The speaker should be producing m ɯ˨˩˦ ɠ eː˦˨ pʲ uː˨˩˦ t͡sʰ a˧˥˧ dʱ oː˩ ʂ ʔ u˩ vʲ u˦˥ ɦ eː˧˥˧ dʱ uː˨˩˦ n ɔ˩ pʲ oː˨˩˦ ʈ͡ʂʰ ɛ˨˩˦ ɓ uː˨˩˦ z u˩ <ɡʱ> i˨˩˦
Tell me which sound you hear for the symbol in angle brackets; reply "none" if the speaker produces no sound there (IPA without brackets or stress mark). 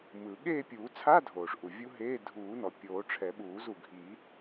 ɡʱ